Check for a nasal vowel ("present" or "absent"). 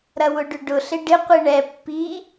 absent